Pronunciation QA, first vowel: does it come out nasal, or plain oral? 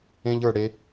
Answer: nasal